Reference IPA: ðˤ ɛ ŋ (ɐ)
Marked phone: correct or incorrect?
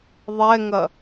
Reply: correct